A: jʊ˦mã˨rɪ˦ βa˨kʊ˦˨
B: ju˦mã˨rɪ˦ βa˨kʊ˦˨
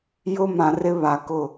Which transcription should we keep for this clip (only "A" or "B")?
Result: A